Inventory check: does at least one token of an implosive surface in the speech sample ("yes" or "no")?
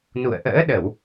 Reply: yes